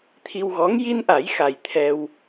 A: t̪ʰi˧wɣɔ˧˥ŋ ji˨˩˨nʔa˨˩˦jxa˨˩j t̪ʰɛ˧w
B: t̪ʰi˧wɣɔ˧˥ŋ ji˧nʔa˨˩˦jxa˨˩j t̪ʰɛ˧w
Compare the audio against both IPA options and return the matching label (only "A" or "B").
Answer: B